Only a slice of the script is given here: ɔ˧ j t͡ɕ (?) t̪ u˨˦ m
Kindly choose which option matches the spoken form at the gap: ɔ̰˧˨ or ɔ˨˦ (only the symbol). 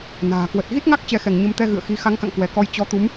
ɔ˨˦